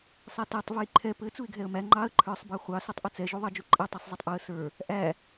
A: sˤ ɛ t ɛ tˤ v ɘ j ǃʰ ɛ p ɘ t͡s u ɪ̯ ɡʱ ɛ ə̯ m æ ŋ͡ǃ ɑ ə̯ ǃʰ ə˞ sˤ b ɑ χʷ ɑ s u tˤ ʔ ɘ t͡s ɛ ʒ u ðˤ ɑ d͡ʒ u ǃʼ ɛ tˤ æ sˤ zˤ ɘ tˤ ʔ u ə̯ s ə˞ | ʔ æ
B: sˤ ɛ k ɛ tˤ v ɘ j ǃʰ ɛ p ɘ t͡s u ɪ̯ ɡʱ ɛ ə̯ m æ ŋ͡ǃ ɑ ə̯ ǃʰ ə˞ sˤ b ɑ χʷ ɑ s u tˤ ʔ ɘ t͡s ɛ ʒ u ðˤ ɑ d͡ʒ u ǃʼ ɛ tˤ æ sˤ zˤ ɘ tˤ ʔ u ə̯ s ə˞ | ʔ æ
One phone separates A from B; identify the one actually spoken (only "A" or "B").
A